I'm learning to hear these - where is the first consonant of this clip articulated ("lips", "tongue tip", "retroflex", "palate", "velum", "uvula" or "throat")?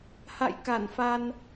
throat